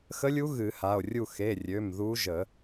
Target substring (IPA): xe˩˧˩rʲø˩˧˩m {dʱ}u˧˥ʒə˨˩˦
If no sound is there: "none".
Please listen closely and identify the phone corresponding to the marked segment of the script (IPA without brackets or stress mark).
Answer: ð